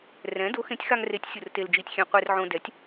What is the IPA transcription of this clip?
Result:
rɛ̃˨˥ do˨˥xẽ˨˥tʲxa˧ŋre˨˥tʲ sʲʊ˧rte˧ld͡ʒi˧tʲxʲẽ˧ qʷe˧rʕõ˧ dɛ˨˥tʲ

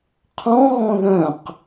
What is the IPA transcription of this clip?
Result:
qʰɔ̃ɣɔ̃ ðœ̃q

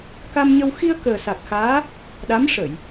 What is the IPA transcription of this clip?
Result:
ka˧mɲə˧w xi˧ə̯ kəː˨˩sa˨˩k̚xaː˧˥ | ɗa˧˥mʂə˨˩˨j

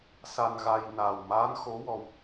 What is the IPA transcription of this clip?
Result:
sa˧nɣa˧j naː˨˩wmaː˧˥nxo˧˥ wɔ˧w

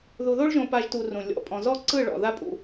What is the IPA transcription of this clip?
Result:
ðu˨ðo˦ɭ ʒõ˦pa˦ʒ tu˧rũ˨ lʲɔ̰˨ pʼɔ̃˨zɔ˦ǀɯ˦˨ ɭɔ̰˨ ða˦ pʼṵ˧

